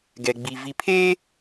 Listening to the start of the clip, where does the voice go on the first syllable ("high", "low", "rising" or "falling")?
low